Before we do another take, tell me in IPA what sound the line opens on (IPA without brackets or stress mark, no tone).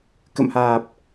k